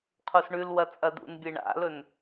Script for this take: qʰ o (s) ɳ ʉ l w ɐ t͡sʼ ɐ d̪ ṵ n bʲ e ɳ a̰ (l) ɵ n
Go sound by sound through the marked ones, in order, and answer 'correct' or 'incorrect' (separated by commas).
correct, correct